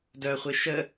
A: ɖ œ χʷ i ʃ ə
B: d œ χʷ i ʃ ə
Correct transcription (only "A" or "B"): B